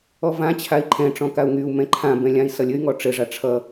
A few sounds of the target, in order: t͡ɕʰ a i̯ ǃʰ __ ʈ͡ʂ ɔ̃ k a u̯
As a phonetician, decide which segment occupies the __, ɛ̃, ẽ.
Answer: ɛ̃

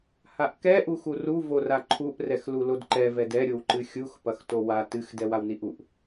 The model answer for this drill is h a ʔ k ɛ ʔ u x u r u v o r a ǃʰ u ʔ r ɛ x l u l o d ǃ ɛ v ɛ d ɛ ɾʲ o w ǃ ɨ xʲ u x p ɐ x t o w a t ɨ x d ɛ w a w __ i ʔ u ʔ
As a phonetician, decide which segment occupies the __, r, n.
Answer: n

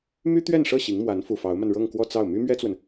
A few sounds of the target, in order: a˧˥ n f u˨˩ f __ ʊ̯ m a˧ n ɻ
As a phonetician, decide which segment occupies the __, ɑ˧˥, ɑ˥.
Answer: ɑ˧˥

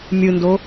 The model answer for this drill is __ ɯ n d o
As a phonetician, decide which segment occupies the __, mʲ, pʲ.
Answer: mʲ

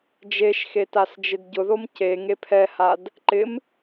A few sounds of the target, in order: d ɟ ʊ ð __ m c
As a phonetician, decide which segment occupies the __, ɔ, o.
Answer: o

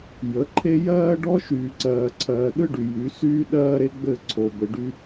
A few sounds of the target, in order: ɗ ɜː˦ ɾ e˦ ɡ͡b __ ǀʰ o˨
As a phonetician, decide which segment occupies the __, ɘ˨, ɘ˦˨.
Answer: ɘ˦˨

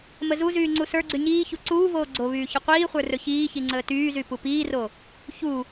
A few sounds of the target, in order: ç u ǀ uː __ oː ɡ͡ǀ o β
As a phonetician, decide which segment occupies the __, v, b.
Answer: v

